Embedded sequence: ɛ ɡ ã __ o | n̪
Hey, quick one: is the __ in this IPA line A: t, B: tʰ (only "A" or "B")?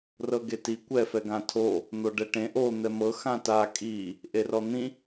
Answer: B